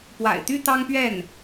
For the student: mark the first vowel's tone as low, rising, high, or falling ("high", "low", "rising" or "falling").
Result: low